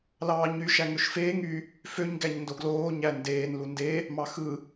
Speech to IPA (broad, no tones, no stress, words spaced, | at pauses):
lɑːɲy ʃæŋøʃfeːŋ y | føɲ ɡæɲndoɡloː ɲændeːn lunde | mɑxɯ